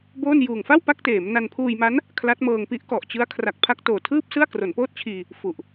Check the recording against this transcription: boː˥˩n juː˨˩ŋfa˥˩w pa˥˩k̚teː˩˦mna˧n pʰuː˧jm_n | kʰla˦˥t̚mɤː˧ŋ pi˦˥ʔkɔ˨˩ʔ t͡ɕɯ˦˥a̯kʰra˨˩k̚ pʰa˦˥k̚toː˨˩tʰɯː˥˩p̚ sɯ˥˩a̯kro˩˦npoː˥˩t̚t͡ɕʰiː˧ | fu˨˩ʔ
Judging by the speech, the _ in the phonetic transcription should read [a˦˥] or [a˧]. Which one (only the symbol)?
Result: a˦˥